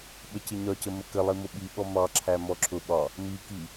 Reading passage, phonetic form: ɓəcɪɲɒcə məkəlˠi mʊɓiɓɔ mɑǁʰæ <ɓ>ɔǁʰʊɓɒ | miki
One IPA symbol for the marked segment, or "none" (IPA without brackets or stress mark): m